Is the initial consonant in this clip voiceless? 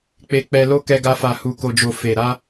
yes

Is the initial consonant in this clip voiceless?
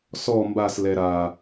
yes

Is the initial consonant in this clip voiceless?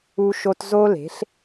yes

